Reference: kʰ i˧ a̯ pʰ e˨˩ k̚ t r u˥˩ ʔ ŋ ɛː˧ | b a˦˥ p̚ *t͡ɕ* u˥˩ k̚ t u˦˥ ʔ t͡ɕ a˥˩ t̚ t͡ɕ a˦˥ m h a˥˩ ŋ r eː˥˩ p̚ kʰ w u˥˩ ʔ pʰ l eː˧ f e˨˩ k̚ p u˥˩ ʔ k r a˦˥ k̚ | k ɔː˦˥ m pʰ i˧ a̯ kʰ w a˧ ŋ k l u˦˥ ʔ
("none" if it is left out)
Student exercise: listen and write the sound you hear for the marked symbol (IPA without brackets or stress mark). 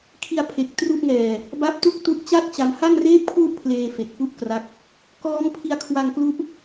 t